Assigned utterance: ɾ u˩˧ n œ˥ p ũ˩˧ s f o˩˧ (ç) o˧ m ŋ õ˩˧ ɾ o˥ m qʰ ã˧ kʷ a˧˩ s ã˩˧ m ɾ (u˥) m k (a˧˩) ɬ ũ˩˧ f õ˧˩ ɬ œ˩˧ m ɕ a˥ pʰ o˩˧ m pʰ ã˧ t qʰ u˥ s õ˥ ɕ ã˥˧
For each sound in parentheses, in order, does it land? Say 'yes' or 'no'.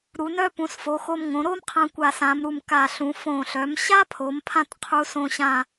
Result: no, no, yes

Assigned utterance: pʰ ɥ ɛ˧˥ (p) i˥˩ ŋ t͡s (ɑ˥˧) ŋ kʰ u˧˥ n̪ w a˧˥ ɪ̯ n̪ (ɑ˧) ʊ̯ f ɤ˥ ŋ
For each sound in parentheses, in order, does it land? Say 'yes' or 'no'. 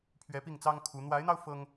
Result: yes, no, yes

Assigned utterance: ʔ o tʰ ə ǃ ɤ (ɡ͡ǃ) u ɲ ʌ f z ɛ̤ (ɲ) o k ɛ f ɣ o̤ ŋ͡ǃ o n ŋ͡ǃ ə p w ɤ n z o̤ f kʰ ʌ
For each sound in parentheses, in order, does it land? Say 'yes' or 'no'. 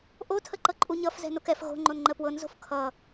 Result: no, no

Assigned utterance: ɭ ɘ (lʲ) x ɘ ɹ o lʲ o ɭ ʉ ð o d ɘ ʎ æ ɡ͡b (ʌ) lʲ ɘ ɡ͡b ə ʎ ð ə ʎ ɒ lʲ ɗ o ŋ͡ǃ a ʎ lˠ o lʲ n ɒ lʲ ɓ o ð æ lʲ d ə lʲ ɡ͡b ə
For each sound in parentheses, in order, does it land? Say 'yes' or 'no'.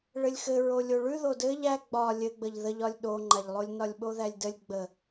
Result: yes, no

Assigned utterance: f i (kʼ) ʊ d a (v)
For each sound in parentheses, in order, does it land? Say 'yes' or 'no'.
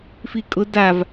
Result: yes, yes

